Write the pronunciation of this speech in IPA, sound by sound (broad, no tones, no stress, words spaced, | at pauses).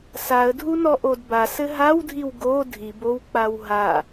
saə̯dʱunɔ ʔodbasɘ ɦawdʱiw ɡo dʱibowk͡paw ɦa